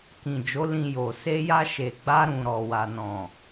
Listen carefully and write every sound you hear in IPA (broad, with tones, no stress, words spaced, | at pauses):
kĩ˨d͡ʒo˨˦ lĩ˧jo˨ se˧ja˧ ʃe˨ɡ͡ba˧ ɾũ˨ɾɔ˨wa˨ nɔ̃˨